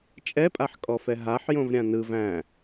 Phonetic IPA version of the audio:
t͡ʃʼ ɛ pʼ a ħ kʼ ɔ f ɛ ɦ a ħ j õ v ɾʲ ã n ɯ v æ̃

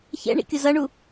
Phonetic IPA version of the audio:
ç ɛ̰ ɳ ḭ kʲ ʊ z ʌ ɳ u

